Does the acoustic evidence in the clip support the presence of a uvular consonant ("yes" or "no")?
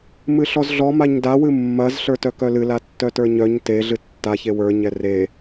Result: no